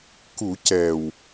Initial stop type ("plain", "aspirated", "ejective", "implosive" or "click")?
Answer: plain